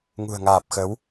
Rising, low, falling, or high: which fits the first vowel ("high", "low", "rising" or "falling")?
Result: low